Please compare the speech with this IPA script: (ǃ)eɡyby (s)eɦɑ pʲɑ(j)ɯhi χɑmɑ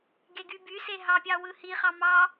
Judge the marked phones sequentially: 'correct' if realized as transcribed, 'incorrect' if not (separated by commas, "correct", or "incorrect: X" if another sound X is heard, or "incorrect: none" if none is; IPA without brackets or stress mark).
incorrect: ɡ, correct, incorrect: w